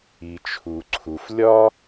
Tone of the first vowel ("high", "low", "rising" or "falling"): low